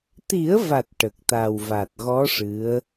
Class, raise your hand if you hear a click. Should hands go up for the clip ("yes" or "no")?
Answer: no